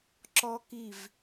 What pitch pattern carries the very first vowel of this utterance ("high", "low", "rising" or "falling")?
high